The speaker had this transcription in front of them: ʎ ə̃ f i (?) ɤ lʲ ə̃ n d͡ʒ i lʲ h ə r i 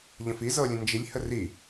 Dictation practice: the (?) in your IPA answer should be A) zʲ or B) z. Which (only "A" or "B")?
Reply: B